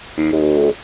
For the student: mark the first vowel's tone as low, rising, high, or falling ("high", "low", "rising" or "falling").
low